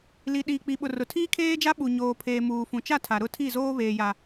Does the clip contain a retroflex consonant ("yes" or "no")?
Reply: no